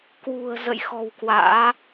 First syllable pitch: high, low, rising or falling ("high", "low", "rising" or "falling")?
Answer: low